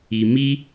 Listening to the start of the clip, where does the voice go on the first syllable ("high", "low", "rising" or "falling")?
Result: low